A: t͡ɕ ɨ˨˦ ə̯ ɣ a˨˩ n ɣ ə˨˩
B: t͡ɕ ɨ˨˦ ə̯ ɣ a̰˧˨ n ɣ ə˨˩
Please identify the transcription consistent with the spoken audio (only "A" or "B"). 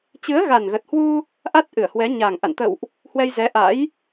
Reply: A